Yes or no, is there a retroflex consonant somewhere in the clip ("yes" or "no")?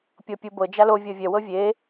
no